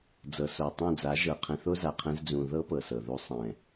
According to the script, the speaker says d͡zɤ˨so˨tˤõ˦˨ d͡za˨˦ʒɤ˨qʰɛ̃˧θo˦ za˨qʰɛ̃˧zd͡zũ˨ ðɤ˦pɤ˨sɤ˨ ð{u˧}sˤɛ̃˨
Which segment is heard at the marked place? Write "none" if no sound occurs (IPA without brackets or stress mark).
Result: u˧